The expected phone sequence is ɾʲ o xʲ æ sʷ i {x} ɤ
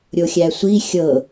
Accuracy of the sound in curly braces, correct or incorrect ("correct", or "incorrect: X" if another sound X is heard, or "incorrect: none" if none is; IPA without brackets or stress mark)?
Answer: incorrect: xʲ